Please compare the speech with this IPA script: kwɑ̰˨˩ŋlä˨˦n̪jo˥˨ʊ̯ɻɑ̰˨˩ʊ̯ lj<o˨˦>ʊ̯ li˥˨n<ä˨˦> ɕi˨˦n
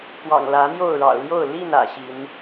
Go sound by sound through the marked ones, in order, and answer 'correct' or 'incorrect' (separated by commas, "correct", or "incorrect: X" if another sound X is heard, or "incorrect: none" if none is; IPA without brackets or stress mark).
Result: incorrect: o˥˨, incorrect: ä̰˨˩